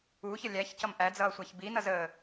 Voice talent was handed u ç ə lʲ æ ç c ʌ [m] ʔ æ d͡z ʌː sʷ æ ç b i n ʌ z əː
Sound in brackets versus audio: correct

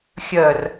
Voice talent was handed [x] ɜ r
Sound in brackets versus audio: incorrect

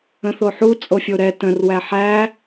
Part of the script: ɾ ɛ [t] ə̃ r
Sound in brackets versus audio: correct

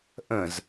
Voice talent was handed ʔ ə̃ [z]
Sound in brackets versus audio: correct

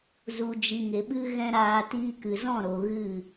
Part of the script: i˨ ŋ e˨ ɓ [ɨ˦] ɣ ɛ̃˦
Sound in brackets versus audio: correct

